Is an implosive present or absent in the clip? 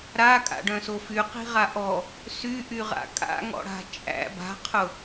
absent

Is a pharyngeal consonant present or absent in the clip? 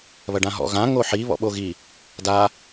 present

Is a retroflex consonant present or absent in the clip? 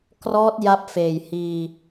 absent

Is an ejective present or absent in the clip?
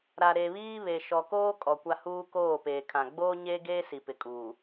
present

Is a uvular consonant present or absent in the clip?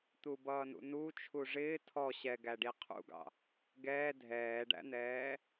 present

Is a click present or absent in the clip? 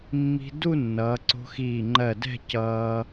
present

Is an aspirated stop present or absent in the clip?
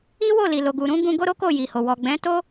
absent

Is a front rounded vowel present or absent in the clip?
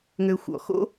present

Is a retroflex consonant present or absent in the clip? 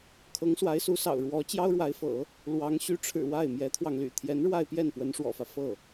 present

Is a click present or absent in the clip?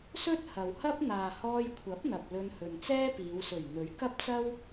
absent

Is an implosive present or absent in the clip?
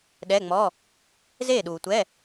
present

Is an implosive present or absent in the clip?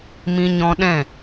present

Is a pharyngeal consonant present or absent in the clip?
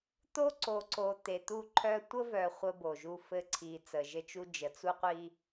absent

